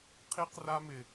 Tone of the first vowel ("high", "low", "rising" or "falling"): high